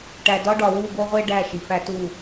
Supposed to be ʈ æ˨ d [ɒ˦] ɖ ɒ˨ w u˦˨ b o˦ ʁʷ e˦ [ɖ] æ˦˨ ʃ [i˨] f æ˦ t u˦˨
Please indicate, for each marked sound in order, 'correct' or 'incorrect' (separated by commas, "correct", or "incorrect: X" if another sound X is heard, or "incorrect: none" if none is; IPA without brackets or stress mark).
correct, correct, correct